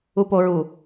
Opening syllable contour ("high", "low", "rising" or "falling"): low